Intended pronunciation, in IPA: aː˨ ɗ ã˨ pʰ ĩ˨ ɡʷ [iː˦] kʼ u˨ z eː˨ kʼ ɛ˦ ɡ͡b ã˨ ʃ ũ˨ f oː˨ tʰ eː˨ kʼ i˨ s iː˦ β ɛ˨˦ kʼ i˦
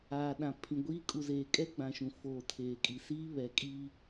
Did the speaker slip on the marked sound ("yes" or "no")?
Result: no